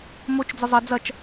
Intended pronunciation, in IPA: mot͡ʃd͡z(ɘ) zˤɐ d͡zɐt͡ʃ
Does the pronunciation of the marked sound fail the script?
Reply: no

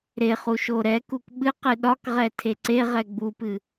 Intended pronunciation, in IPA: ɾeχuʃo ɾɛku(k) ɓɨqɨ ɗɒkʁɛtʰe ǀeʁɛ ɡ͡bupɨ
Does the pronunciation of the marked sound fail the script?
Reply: no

